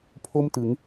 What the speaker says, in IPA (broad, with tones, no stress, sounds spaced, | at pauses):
pʰ o˥˩ m t ɯ˩˦ ŋ